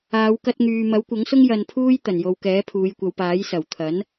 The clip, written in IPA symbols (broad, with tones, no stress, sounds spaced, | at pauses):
aː˨˧ w k ɐ˧ t̚ ŋ yː˨ m ɐ˨˥ w kʷ ɐ˨˥ ŋ s ʊ˥ ŋ j ɐ˧ n pʰ uː˥ j t̪ ɐ˨˩ n j o˨ w k ɛː˨˥ pʰ uː˨˧ j kʷ ɐ˨˧ w p aː˨˥ j s ɐ˨˩ w t̪ʰ ɐ˨˥ n